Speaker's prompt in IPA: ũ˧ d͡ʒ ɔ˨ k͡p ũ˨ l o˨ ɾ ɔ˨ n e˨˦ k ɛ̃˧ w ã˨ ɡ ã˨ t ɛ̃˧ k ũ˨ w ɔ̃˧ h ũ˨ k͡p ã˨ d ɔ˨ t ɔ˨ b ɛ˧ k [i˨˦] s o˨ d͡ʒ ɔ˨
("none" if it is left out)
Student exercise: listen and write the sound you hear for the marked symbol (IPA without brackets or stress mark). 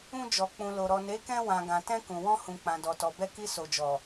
i˧